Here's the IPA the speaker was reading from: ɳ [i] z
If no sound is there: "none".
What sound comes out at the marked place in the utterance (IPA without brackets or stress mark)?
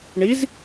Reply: i